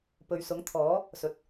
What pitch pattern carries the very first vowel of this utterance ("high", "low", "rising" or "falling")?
low